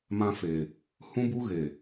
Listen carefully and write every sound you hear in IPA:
m ã˧ f e˨ | h ũ˦ b u˦ ɣ e˨

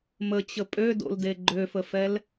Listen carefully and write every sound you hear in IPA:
m ə t͡ɕ ə pʼ ø d o̰ l d e ɡ͡ǃ ø f ə f ɛ l

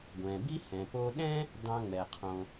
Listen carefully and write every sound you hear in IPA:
ɡʷ ɛ̃˩ b i˥ h ɛ̃˩ p o˧ ɗ ɛ̃˥ | d ɑ̃˧ ŋ͡m ɛ˩ qʰ õ˩

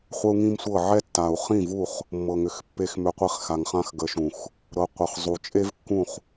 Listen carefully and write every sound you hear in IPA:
χʷ ə˦ u̯ ŋ ĩ˦ m sʷ ɤ˦˨ ʕ ɛ˦ tː a˨ u̯ χ ĩ˦˨ v u˦˨ χ | mː ɤ˨ ŋ ʏ˨ x pː e˧ x m ʏ˨ qʷ i˨ χ x a˨ ŋ χ ã˧ x ɡ ə˨˦ ʃ ũ˨ x | ɾ ɤ˨˦ qʷ ɤ˨ χ zˤ u˨ t͡ʃʼ e˦ v kː ũ˦˨ χ

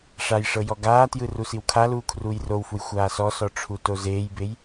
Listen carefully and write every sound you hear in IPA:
ʂ a j ʂ ɤ j ɔ ɡ aː t j ɯ r u s i w kʰ a l uː kʰ r uː j r o w f u j xʷ aː s ɔ s ɔ ʈ͡ʂʰ u t o z eː j b e j

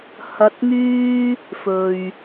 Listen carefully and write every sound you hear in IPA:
h ɐ˧ t̚ ŋ yː˥ | f ɵ˨ ɥ

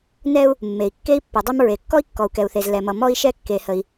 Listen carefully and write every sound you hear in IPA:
n ɛ˥ u̯ | mː e˩ i̯ kː e˥ i̯ pː ʌ˩ dˤ ɛ˥ m ɹ e˩ kː ɔ˥ i̯ kː ɔ˩ u̯ k ɛ˩ u̯ θ e˩ z l ɛ˩ m ʌ˩ m ɔ˥ i̯ ʃ ɛ˥ kː e˩ h ə˩ i̯

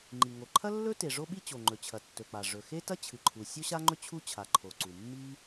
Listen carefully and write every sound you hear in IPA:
ŋ͡ǃ i˩ ŋ o˩ ǃʰ ɐ˥ lː ɵ˥ t e˩ ʐ o˥ ɓ i˥ t͡ɕ o˩ ŋ͡ǃ ɵ˩ t͡ɕʰ ɐ˩ tː ɵ˩ k͡p a˩ ʐ ɵ˩ x e˥ t ɐ˥ t͡ɕʰ ɨ˩ ǃʰ u˩ sʲ o˥ ɕ a˥ ŋ͡ǃ ɵ˥ t͡ɕʰ u˥ t͡ɕʰ a˩ ǃʰ o˩ ǀ u˩ mː i˥

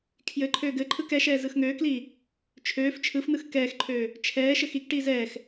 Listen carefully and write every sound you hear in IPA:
kʰ j ɘ ǃʰ øː ɡ ɘ ǃʰ ɯ k ɛ ʃ ɛː z ɯ x ŋ øː k l iː | t͡ʃʰ øː f t͡ʃʰ ɯ f n ɯ x k ɛː x ǃʰ øː | t͡ʃʰ ɛː ʃ ɘ x i k ʈ iː z ɛː x

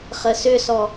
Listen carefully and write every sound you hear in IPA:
χ ə s ʏ s ɔ

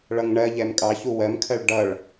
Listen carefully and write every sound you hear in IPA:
ɭ ʌ ŋ ɳ ɜ ʎ ɛ m kʼ ɑ ç u w ɜ m kʰ ɜ ɭ ɖ ʌ ɭ

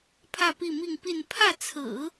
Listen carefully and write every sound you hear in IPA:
pʰ ä˥˧ p i˥˧ m i˥˧ ŋ p i˥˧ n pʰ ä˥˩ t͡sʰ ɹ̩˨˩˦

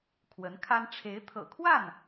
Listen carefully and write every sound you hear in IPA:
kʰ w ə˧˥ n kʰ a˥ n ʈ͡ʂʰ e˧˥ ɪ̯ t̪ʰ ɤ̰˨˩ kʰ w a˥˩ n

